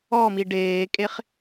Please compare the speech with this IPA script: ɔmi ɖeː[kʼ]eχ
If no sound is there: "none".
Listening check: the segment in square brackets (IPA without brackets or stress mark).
kʼ